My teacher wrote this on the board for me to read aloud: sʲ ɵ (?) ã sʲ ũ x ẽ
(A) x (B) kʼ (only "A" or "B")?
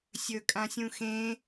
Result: B